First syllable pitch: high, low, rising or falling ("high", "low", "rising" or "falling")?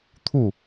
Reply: falling